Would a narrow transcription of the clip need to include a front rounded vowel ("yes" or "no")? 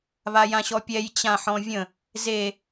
no